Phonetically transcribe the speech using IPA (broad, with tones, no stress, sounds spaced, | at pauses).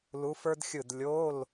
l u˧˥ f ə˞˥ d xʲ ɯ˦˨ d lʲ o˧˥˧ l